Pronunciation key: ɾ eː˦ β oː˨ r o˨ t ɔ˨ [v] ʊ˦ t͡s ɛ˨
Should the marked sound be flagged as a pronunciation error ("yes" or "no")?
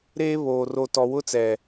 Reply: yes